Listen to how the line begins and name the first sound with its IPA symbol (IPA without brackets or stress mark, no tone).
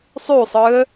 sˤ